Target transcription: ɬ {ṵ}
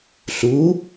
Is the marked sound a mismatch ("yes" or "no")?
yes